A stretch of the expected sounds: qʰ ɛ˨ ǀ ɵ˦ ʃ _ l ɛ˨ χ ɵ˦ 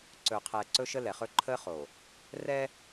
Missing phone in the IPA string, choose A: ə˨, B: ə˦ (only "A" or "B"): B